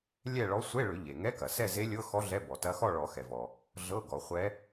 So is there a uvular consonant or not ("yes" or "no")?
yes